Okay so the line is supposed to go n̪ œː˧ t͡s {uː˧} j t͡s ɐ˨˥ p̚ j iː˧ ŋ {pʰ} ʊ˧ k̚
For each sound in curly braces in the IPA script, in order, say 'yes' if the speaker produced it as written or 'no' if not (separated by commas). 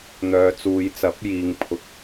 no, yes